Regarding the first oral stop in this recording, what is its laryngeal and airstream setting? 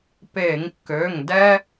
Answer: plain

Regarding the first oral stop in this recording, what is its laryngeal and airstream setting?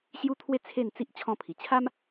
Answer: aspirated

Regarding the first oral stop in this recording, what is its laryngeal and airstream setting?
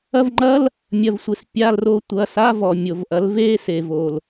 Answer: click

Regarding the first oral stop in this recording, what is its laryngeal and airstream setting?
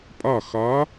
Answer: ejective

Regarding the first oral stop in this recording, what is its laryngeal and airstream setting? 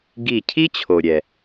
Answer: plain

